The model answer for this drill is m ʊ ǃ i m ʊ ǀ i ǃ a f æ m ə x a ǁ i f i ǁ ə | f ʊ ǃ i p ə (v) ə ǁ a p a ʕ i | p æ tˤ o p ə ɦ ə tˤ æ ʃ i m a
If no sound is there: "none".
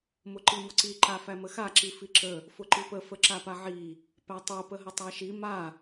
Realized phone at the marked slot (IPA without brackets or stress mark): f